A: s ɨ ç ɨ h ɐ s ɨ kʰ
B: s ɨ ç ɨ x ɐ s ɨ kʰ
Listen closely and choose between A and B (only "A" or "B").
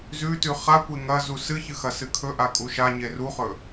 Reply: B